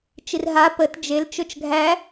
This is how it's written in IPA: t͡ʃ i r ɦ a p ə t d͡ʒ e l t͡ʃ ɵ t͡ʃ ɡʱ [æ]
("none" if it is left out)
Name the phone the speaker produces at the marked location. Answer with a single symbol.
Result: æ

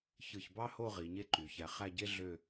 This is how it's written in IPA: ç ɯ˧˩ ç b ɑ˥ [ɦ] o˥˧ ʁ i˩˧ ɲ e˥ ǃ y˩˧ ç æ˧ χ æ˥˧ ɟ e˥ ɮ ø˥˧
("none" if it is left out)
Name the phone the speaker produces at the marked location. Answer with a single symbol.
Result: h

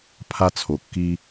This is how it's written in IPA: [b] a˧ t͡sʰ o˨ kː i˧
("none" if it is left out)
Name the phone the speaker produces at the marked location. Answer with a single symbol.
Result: pʰ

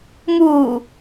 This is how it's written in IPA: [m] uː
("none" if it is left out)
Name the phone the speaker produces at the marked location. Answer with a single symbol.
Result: m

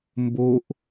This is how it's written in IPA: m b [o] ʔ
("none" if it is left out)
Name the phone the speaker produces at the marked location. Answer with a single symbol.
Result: o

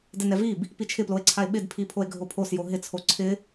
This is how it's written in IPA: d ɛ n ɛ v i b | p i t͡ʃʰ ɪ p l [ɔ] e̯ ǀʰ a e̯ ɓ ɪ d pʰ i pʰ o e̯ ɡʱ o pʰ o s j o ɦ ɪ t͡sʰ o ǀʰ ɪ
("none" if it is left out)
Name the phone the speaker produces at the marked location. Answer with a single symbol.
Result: o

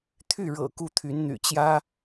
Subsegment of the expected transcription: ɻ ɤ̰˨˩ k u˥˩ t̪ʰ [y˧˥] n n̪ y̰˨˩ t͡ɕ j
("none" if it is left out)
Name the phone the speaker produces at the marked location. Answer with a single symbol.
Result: y˧˥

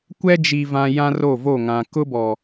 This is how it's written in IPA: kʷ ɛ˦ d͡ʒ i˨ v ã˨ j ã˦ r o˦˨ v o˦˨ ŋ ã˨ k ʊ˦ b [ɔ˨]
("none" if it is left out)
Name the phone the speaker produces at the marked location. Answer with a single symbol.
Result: ɔ˨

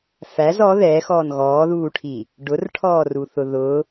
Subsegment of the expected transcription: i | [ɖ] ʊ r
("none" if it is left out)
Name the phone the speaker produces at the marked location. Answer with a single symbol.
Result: ɖ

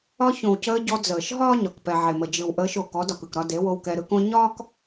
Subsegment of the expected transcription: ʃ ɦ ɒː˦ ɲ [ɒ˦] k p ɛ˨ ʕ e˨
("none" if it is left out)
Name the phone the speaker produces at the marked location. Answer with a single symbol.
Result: ɒ˨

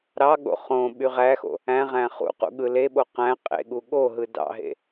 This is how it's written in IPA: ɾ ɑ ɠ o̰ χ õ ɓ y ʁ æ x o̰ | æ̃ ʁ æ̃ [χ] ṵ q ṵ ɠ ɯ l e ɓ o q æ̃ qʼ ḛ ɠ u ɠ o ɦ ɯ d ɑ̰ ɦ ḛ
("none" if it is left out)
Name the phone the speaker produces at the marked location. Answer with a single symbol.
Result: χ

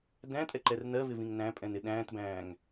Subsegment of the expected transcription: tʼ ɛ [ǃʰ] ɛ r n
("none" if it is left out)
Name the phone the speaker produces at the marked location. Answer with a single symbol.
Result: ǃ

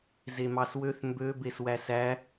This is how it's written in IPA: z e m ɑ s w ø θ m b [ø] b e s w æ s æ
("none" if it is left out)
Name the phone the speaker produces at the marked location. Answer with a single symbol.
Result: ø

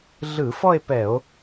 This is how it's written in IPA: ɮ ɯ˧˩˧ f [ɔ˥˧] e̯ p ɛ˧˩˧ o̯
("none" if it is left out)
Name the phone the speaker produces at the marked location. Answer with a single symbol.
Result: ɔ˥˧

